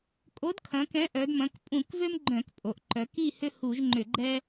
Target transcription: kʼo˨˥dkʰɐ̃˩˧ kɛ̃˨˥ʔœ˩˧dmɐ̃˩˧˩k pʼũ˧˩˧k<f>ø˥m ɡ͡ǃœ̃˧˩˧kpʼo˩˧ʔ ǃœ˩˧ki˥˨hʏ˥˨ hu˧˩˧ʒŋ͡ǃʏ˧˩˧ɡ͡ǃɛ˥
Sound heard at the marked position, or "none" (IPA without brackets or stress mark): v